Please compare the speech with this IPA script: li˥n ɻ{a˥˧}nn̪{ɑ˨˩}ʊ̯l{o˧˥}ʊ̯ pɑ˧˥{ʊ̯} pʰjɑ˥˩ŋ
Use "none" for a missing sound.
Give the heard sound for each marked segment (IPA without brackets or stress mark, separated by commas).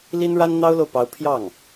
a˥, ɑ˥, o˨, ʊ̯